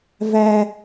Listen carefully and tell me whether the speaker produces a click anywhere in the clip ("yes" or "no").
no